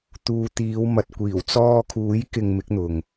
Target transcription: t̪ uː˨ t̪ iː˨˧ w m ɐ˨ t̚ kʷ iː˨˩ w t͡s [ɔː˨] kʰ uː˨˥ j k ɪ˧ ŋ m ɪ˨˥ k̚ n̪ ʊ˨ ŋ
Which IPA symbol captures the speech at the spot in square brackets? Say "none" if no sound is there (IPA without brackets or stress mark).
ɔː˧